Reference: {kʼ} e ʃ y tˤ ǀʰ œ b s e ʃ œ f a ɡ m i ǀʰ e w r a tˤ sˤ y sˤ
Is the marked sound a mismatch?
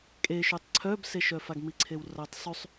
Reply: no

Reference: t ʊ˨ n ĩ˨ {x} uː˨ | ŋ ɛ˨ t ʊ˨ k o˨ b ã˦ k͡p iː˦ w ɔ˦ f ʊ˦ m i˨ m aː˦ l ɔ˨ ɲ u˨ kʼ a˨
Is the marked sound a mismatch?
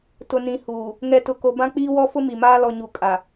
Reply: yes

